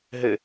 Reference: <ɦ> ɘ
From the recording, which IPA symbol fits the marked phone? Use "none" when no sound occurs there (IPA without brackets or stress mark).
ɦ